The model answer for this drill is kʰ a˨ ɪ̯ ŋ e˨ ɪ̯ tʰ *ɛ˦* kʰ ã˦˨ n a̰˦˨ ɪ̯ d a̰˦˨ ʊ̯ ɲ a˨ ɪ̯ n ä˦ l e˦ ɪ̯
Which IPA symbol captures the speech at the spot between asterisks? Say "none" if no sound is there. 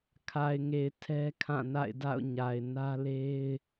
ɛ˦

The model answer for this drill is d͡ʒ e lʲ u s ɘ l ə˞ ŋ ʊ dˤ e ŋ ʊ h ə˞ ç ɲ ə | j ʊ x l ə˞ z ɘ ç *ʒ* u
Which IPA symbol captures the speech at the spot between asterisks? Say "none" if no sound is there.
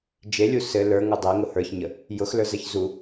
z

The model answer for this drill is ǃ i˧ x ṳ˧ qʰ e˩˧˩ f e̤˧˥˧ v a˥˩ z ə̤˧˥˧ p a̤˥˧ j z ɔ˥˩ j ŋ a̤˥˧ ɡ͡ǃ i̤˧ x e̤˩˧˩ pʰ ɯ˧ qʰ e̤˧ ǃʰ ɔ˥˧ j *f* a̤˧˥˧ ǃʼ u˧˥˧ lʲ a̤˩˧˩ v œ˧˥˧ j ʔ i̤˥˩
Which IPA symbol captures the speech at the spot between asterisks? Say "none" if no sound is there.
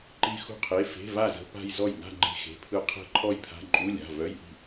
pʰ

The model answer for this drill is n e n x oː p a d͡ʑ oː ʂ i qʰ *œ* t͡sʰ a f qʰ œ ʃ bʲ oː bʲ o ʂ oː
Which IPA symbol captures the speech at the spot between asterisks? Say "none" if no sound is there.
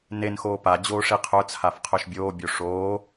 œ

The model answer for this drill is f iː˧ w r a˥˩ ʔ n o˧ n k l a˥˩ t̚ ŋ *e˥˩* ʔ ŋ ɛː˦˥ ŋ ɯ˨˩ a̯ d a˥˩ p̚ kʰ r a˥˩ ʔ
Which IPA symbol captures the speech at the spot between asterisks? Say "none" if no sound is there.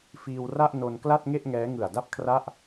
e˥˩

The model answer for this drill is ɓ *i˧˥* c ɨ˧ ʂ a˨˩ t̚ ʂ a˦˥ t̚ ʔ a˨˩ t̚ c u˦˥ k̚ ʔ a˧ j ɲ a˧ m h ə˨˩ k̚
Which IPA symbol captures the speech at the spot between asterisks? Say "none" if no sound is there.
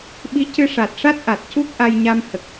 i˧˥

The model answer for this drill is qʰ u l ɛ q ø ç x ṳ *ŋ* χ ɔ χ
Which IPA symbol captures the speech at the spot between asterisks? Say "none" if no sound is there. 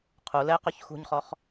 ɲ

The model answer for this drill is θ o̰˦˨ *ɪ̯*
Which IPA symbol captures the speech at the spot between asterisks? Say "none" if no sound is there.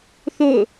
ʊ̯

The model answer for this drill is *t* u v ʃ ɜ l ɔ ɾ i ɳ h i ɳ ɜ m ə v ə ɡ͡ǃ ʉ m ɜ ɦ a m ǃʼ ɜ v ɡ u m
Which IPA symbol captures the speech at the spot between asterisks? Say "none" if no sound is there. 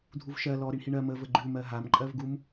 dʱ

